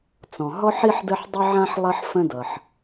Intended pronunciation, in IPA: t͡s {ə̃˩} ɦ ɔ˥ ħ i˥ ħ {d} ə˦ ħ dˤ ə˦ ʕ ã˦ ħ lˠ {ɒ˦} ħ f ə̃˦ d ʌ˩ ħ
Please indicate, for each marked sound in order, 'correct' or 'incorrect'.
incorrect: ɔ̃˩, correct, incorrect: ʌ˦

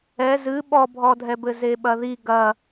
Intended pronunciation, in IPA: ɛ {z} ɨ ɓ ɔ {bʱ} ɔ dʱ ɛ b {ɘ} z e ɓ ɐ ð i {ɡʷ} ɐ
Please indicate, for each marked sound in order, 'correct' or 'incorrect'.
correct, correct, correct, incorrect: ɡ

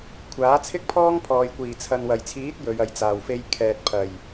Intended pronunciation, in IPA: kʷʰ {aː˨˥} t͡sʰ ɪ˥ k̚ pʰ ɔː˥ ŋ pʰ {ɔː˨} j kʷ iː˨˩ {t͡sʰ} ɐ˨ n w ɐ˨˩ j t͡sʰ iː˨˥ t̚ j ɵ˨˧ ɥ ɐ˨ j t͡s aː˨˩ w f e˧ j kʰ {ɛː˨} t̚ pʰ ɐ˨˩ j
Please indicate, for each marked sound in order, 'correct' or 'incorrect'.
correct, correct, correct, correct

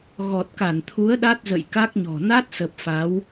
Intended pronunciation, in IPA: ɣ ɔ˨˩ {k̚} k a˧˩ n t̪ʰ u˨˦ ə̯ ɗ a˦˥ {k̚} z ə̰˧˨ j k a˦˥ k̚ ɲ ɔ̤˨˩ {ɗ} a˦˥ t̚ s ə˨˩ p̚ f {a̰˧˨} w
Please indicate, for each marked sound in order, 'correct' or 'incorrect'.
incorrect: t̚, incorrect: t̚, incorrect: n, incorrect: a˨˦

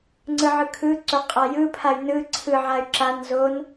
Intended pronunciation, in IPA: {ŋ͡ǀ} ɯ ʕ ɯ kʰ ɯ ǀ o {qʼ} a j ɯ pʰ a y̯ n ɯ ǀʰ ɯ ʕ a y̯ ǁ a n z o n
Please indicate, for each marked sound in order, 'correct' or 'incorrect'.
correct, correct

